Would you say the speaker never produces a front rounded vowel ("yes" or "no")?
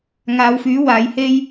no